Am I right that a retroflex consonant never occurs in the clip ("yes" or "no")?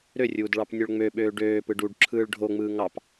no